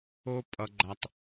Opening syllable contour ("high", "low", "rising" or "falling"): high